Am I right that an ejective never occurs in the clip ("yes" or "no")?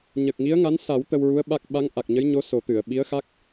yes